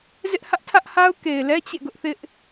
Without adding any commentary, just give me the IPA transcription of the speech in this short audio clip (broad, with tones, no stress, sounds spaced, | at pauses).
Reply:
z ɪ˦ ʔ h ä˦ ʔ tʰ ä˦ ʔ h a˦ ʊ̯ k e˨ ɪ̯ l ɛ˦ t͡ɕ ḛ˦˨ ɡ ʊ˦ ʔ θ ɪ˦ ʔ